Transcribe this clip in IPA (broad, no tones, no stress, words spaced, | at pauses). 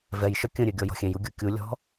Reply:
vɛjʃœ kʲə̃ɾʲø ɡʲɔjɔ̤xʲẽju ɡʲukʲulʲɔ̤